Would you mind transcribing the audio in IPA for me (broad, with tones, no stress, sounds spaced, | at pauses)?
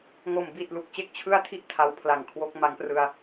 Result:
ŋ o˨˩ m b i˨˩ t̚ l u˨˩ k̚ t͡ɕ e˥˩ k̚ t͡ɕʰ ɯ˥˩ a̯ tʰ i˥˩ ʔ tʰ a˧ w pʰ l a˨˩ ŋ kʰ w o˦˥ k̚ m a˦˥ ŋ p r ɯ˧ a̯